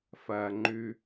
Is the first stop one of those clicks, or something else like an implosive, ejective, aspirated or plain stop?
click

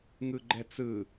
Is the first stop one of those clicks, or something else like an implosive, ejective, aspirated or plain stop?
click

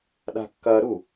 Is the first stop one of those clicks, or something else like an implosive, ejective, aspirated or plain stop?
implosive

